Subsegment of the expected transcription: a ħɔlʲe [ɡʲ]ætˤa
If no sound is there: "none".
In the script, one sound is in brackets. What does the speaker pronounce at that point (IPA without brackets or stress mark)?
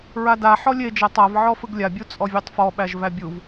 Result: d͡ʒ